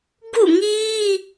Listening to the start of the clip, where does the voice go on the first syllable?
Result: falling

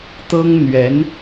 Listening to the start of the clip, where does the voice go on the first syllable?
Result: high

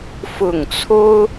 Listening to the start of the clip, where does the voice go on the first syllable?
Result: falling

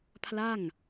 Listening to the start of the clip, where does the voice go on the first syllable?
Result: falling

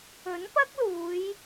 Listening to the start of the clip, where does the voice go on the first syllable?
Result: rising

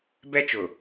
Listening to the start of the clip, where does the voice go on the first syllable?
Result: high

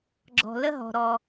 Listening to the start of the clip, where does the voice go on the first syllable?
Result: low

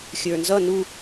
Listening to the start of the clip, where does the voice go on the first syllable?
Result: low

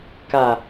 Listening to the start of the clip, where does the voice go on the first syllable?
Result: low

